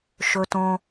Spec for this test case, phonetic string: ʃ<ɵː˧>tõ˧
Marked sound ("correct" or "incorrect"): incorrect